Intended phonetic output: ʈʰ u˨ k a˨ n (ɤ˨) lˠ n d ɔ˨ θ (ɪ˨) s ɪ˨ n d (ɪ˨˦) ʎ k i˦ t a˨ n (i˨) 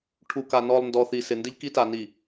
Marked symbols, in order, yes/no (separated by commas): no, no, no, yes